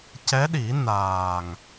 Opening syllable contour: rising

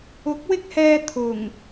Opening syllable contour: rising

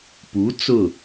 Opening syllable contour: rising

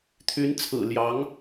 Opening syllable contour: rising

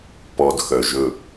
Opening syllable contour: low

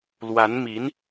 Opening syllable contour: rising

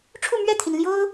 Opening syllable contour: falling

